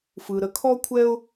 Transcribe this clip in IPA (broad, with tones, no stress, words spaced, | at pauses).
fɯ˩ ɾə˩kʰɔ˥kʷʰɛ˥ʊ̯